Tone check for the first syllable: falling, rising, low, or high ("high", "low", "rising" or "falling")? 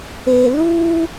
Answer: low